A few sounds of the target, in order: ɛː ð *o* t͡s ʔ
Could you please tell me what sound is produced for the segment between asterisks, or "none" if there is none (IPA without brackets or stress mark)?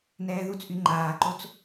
u